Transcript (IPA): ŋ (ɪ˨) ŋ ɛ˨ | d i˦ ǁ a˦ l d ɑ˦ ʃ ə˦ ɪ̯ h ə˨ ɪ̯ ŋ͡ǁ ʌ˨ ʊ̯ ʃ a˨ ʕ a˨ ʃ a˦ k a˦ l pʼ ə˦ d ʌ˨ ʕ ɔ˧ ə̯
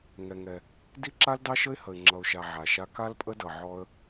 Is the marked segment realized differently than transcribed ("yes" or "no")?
yes